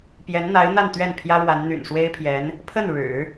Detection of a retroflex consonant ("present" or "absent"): present